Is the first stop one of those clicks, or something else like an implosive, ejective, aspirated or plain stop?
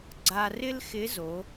click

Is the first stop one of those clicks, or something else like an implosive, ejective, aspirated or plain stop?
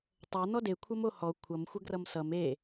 plain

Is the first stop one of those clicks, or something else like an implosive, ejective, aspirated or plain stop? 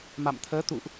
aspirated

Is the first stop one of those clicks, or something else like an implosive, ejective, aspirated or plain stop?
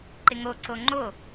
click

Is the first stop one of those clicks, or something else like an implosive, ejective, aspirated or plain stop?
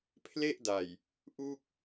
aspirated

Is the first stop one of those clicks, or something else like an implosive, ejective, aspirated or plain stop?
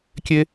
plain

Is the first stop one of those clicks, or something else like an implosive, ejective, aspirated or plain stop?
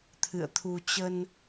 aspirated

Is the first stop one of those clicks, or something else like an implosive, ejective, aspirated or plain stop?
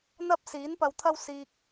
plain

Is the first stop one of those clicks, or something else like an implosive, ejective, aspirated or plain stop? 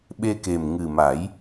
implosive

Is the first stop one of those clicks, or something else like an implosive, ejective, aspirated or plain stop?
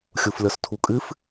aspirated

